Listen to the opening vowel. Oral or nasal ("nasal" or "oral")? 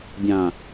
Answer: nasal